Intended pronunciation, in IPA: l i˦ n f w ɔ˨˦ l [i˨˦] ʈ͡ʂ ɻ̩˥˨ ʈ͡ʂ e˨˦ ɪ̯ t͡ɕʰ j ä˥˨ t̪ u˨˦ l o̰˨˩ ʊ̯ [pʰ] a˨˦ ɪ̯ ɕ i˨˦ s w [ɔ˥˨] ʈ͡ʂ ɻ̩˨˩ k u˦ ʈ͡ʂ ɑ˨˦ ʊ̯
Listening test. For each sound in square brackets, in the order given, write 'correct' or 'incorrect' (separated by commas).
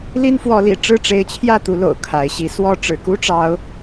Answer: incorrect, incorrect, correct